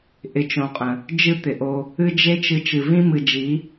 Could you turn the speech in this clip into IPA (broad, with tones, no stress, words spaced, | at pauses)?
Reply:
ʔɪ˧t͡ʃõ˨qʼə̃˨ | d͡ʒɨ˦t̪ɪ˨ʔo˧ | ɨ˦d͡ʒe˦t͡ʃɨ˧ t͡ʃɨ˨vĩ˦ mɨ˨d͡ʒi˨˦